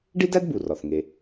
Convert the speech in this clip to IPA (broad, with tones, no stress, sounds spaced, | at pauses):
ɖ i˥ d æ˥ d b u˩ r ɒ˩ θ ŋ e˩